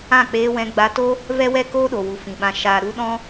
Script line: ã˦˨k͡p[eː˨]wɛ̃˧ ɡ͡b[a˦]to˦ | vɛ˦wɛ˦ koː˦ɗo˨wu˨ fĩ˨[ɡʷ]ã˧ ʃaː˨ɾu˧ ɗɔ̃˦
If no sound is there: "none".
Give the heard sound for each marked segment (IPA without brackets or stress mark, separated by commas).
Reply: eː˧, a˧, ɓ